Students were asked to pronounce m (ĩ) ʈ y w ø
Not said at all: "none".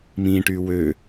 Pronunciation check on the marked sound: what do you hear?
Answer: ĩ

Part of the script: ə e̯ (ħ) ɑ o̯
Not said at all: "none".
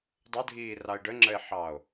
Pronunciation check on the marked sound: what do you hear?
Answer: ħ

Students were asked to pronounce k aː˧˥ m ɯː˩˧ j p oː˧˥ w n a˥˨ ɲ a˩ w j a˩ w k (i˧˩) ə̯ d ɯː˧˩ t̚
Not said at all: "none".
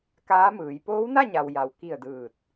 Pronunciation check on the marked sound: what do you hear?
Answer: i˧˩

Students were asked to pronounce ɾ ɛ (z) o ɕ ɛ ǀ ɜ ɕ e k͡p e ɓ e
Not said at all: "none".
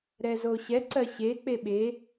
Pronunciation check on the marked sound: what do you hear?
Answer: z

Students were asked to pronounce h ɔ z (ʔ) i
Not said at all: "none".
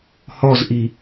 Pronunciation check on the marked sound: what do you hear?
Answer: ʔ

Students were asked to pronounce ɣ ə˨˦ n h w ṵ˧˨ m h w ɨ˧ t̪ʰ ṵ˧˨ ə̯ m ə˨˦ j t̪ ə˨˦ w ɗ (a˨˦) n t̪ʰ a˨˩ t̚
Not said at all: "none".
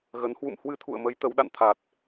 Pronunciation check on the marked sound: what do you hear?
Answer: a̰˧˨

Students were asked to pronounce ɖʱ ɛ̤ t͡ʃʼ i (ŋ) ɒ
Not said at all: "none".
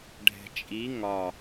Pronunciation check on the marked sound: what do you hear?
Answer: ŋ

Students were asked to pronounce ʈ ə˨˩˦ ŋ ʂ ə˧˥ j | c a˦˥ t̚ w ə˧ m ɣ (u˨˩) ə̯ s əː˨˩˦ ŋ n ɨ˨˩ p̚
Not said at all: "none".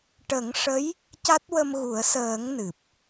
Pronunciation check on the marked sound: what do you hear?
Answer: u˨˩˦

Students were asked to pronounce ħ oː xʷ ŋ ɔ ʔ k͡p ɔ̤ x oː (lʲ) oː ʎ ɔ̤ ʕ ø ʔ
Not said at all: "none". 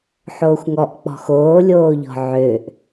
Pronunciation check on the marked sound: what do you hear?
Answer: lʲ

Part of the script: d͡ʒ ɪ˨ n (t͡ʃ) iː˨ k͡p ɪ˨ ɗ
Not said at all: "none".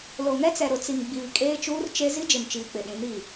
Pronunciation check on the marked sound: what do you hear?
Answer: t͡ʃ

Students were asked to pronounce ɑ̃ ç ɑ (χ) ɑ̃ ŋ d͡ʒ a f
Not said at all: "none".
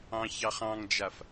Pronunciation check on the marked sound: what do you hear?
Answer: χ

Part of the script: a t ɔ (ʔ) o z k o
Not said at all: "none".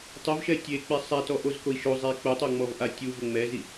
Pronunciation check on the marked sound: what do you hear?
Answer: ʔ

